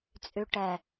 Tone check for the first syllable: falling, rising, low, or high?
low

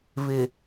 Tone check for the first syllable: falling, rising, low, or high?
low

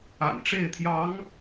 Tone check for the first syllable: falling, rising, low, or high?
low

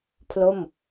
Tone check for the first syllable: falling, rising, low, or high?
falling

